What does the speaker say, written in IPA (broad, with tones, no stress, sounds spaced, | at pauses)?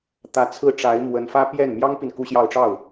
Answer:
t̪ ä˧˥ t͡sʰ ɹ̩˥˩ ʈ͡ʂ a˧˥ ɪ̯ m w ə˧˥ n f ä˥ p j ɛ˥˩ n m j ɑ˥ ŋ p i˨ n k u˥ ɕ j ɑ˥˧ ʊ̯ ʈ͡ʂ ɑ˥˩ ʊ̯